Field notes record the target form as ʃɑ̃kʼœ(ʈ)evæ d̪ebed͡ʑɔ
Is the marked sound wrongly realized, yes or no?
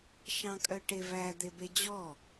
no